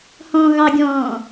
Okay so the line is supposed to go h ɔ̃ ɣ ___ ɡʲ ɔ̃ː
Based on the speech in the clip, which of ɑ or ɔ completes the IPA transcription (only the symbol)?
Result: ɑ